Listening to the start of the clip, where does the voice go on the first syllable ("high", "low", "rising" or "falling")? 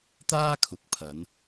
high